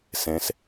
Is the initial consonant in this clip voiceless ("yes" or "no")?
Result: yes